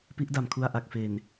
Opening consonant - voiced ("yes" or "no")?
no